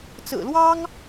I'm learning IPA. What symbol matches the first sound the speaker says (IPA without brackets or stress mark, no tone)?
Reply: t͡s